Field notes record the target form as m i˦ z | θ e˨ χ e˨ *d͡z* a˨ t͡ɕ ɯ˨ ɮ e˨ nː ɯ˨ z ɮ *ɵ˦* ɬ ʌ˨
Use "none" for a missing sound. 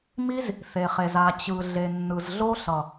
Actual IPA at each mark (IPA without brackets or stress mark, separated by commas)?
z, o˦